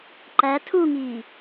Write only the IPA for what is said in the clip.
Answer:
ǃ æ tʰ u ŋ iː

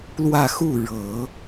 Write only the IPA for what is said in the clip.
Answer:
l w ä˥˧ x u˥˩ ɻ ɤ˨˩˦

